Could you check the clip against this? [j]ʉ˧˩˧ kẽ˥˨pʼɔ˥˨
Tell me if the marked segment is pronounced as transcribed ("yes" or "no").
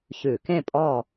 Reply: no